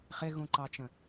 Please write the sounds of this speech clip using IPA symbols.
χ ɪ ɣ ũ ǃ ɑ t͡ʃ ə̃

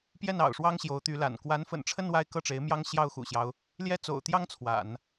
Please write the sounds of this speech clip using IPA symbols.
p j ɛ˥˩ n ɑ̰˨˩ ʊ̯ ʂ w ɑ˥ ŋ ɕ j o˧˥ ʊ̯ t̪ y˧˥ l a̰˨˩ n k w a˧˥ n f ə̰˨˩ n ʈ͡ʂʰ ə˥˧ n w a˥˧ ɪ̯ k ɤ˥˩ ʈ͡ʂ e˧˥ ɪ̯ m j ɑ˥ ŋ ɕ j ɑ˥˩ ʊ̯ x ṵ˨˩ ɕ j ɑ˦ ʊ̯ | l j ɛ˥ t͡s o̰˨˩ ʊ̯ t̪ j ɑ˥ ŋ t͡sʰ w a̰˨˩˦ n

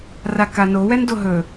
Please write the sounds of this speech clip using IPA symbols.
r a k a n o w ɛ n d o ɦ ɵ

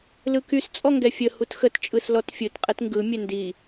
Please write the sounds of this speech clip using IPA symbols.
l ɯ k y s t͡sʼ ɔ ŋ ɡ ɛ fʲ ə h u t x ə t t͡ʃʼ ɯ s l ɔ t fʲ ɯ t qʼ ɛ t ŋ ɡ ɯ mʲ ɛ n d i

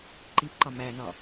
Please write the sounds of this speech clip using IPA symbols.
ǃ i p ǃ ɒ m æ n ɒ

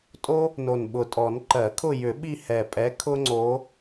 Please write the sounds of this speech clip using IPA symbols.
tʼ o˦ | n o˨˩ n ɓ ʊ˨˩ tʼ ɔ˨˩˦ n ǃ ɜ˨˩˦ kʰ ʊ˦˨ j ʏ˨˩˦ ɓ i˦˨ h ɛ˨˩ pʼ ɛ˨˦ kʰ ʊ˦ ŋ͡ǀ o˨˦

